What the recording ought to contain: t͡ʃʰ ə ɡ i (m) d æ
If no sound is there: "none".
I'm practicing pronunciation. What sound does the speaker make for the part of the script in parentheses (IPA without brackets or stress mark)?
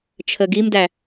m